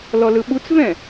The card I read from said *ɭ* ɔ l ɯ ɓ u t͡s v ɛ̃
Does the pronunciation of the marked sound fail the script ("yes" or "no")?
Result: yes